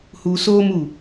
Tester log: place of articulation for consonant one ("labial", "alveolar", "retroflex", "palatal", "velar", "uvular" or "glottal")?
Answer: glottal